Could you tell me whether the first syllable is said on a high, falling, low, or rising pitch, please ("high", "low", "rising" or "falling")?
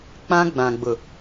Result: high